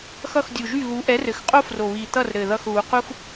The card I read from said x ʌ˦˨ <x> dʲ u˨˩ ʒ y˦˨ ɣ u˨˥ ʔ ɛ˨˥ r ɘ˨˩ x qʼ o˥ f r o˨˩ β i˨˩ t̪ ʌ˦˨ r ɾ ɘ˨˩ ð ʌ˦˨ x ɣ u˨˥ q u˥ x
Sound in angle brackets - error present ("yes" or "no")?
no